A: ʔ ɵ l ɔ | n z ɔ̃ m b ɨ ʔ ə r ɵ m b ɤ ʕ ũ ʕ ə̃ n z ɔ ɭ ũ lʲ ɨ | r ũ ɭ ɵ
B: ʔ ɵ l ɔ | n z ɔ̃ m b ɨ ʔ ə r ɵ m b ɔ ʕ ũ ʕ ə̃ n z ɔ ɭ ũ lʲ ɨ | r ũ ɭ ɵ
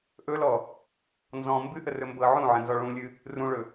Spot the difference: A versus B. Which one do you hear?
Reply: A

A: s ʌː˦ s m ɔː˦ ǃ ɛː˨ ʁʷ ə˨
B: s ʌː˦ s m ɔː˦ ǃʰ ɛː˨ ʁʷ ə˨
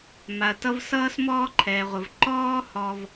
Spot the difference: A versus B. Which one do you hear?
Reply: B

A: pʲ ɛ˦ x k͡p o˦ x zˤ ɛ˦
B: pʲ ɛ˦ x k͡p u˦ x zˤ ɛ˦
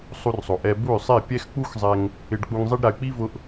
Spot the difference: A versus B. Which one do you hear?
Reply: B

